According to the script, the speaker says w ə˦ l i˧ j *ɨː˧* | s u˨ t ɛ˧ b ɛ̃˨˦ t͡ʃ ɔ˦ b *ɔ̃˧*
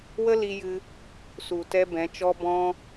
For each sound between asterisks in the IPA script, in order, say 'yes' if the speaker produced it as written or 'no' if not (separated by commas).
no, no